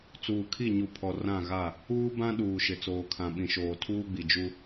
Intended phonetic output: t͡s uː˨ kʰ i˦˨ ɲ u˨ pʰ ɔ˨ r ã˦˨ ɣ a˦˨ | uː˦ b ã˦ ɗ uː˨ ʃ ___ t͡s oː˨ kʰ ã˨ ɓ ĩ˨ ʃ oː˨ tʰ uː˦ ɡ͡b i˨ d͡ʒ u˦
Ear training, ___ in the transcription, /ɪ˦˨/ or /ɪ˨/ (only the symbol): ɪ˨